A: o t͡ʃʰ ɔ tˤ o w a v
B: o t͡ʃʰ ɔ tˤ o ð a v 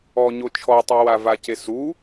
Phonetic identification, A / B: A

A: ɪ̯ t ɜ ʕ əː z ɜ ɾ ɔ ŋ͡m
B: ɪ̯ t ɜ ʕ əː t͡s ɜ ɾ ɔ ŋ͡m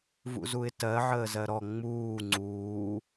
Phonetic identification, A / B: A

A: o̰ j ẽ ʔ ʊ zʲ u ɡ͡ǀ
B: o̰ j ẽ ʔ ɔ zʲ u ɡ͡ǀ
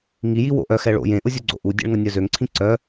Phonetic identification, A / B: A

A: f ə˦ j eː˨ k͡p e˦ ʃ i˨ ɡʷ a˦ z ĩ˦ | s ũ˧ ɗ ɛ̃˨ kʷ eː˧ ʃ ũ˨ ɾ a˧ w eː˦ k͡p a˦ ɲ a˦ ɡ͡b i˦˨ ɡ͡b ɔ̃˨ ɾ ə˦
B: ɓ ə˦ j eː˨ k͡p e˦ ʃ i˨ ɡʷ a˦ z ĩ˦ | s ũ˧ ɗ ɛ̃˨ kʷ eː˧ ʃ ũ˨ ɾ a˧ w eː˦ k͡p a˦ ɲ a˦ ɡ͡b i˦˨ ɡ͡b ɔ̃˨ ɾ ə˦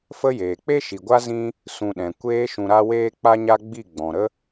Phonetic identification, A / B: A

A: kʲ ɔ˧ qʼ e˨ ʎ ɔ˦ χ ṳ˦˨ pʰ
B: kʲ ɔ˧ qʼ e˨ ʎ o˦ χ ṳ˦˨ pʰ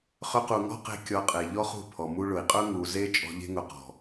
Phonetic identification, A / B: A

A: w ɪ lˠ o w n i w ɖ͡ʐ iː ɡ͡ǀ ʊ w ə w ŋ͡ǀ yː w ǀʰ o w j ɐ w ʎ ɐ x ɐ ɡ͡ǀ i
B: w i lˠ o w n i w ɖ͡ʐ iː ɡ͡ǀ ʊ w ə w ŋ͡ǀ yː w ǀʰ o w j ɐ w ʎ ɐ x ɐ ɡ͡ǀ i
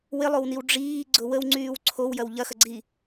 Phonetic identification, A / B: A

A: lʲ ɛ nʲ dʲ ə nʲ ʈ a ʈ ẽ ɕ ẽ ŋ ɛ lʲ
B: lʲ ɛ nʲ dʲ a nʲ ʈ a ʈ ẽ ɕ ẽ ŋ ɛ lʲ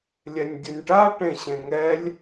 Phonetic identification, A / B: A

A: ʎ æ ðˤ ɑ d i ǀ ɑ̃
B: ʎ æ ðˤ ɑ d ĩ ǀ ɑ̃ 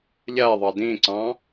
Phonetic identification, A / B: B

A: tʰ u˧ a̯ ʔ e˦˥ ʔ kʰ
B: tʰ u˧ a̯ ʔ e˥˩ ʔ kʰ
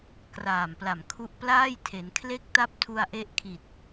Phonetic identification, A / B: A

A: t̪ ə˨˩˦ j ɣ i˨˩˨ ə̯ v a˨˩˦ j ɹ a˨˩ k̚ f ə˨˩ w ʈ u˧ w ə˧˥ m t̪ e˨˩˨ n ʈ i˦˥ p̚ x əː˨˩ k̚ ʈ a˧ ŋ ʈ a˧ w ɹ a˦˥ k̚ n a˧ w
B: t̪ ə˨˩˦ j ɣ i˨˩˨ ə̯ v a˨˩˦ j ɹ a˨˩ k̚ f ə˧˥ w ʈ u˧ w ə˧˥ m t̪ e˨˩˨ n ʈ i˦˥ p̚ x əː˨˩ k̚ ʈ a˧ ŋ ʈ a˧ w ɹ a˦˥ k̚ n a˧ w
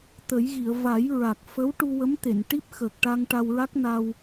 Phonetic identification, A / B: B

